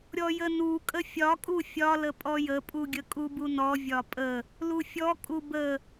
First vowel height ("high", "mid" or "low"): mid